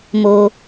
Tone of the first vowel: high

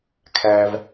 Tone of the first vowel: high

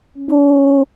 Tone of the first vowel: high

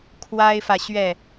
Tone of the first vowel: high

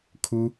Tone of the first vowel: high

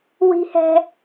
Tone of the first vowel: high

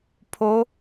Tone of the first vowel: rising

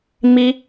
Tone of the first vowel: high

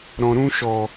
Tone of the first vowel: low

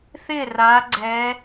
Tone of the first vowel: falling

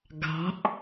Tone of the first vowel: rising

